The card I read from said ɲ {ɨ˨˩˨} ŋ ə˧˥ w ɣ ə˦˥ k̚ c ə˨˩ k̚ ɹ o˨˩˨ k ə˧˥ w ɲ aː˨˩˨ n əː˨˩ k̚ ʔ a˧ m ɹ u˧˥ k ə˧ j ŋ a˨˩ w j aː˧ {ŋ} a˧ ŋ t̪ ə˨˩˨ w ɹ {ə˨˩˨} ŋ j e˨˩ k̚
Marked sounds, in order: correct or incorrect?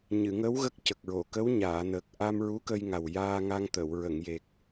correct, correct, correct

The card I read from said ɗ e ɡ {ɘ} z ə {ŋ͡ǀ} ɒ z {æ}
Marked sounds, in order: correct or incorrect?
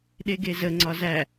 incorrect, correct, correct

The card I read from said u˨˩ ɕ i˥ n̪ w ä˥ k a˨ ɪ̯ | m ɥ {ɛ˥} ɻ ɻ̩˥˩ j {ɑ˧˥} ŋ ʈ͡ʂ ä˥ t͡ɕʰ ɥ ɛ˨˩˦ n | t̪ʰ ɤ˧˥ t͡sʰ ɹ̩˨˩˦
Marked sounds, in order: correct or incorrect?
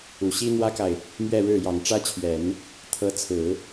incorrect, incorrect

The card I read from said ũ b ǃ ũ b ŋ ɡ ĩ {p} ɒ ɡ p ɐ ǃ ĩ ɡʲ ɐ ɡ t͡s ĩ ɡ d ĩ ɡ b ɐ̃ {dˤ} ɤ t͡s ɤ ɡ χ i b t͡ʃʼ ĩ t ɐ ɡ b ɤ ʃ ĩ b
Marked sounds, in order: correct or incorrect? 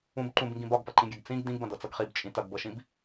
incorrect, incorrect

